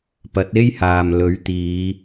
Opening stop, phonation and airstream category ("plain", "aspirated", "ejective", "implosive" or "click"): plain